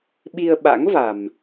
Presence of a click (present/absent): absent